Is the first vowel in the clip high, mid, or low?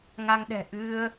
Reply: low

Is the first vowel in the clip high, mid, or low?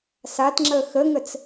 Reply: low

